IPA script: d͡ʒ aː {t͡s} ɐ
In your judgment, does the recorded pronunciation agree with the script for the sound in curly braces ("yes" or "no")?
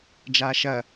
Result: no